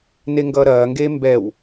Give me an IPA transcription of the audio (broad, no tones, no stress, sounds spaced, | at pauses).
n e ŋ ɡ ʌː ɾ ɐː ŋ ɡ eː m b ɛ w